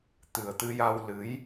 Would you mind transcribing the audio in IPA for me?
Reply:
t̪ ɨ˨˩ ə̯ t̪ ɨ˧ j a˧ w l ɨ˧˥ j

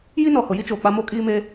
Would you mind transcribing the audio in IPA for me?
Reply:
j i˦ n ɔ˨ h ʊ˨ j i˦ t͡ʃ oː˨ k͡p a˦ m o˦ kʼ iː˦ m eː˦

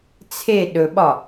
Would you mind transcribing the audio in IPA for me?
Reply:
t͡sʰ e ɗ ɵ ɓ ɒ

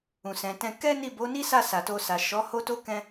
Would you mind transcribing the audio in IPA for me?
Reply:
ũ˨ s ɛ̃˨ t ɛ̃˧ k ɛ˦ n i˦˨ b o˨˦ n i˦ s a˦˨ s a˨ t o˧ s a˨ ʃ ɔ˨˦ h o˦ t o˦ k ɛ̃˧

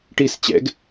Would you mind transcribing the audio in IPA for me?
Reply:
ʈ i s t͡ɕ ɛ̰ ɡ

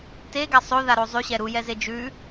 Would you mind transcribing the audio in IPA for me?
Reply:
t e ɡ a sˤ o ð a ɾ o zˤ ʉ ɕ ɛ ɾ u j ɛ z e d͡ʒ ʉ

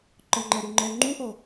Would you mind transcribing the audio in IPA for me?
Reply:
ǃ ɤ ŋ͡ǃ ɛ ɾ u ŋ͡ǃ ɛː ŋ͡ǃ u ʔ ɤ

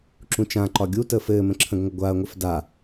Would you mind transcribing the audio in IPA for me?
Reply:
ǁ ũ t͡ʃ ã ǃ ɒ ɡʲ u t əː f ɘː m ə̃ ǁʰ ə̃ ɡ ŋʷ ə ɡʷ a ɐ̯ ŋʷ ɘ f d a

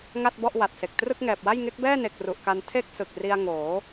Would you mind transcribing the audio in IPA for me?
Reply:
ŋ a˥˩ t̚ b ɔ˥˩ ʔ w a˨˩ t̚ s e˨˩ k̚ t r ɯ˥˩ k̚ ŋ ɛː˨˩ p̚ w a˥˩ j ŋ e˦˥ k̚ b ɛː˥˩ n e˨˩ k̚ r u˨˩ ʔ k a˧ n tʰ e˥˩ k̚ s ɯ˨˩ k̚ r i˧ a̯ ŋ oː˩˦

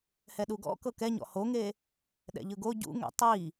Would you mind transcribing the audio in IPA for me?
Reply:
h ɛ ɗ u ɡ ɔ̰ k ɤ k ɛ ɲ ɔ̰ h o ŋ e | ɗ ɛ̰ ʎ ɯ ɡ o ɟ ṵ ŋ ɛ̰ tˤ i

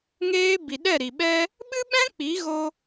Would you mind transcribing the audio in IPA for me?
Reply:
ŋ eː˧ b i˨ ɗ ɛ˦˨ ɾ i˨ ɓ ɛ˦ | ɓ ɨ˦ ɓ ɛ̃˦ k͡p i˨˦ ɣ o˧

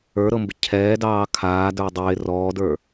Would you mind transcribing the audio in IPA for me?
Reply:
ə˞ ɾ ɤ m b ɪ cʰ ɛː d ɑː kʰ aː d ə˞ dˤ ɪː r ɔː d ə˞

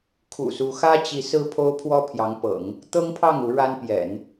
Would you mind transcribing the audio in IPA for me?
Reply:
kʰ ṵ˨˩ s u˧˥ x ä˥ t͡ɕ i˧˥ s ɹ̩˥ pʰ o˥ ʊ̯ pʰ w ɔ˥ pʰ j ɑ˧˥ ŋ p ɤ̰˨˩˦ ŋ | t̪ ɤ˥ ŋ pʰ ɑ˥˩ ŋ u˧˥ ɻ a˥ n p j ɛ̰˨˩˦ n

